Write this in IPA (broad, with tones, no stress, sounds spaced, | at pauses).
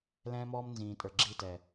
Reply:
l ɛ̃ː˦ m ɔː˦ m n z ĩː˨ tʼ ə˞˨ ɡ͡ǁ i˦˨ t ɛ˨